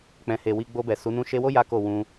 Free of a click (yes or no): yes